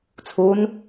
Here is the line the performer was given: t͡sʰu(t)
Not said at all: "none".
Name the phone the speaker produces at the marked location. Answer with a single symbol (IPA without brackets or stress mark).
n